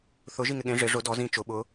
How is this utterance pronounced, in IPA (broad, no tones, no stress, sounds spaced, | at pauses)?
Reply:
θ ʊ ʒ i ŋ ɪ ɠ ẽ ʐ ɪ ʐ ʊ d ɔ z ĩ t͡ʃ ʊ ɓ ʊ